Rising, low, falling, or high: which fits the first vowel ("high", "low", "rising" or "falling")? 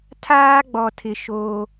high